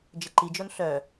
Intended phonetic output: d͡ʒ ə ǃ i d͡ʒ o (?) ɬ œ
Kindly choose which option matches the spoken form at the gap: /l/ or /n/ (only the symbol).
n